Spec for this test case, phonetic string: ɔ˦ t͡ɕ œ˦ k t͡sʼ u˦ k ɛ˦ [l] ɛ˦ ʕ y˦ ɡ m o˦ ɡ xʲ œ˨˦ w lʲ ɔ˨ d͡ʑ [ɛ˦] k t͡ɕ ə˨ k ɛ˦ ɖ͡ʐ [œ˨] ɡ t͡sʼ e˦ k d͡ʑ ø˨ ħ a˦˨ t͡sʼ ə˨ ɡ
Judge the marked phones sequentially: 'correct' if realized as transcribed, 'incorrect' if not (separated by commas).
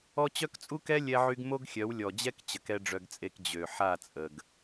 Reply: incorrect, correct, incorrect